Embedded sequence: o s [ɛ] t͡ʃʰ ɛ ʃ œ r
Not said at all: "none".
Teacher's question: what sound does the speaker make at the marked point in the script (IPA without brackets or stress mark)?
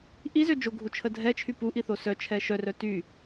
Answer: œ